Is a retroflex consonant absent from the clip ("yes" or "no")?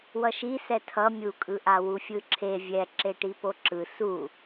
no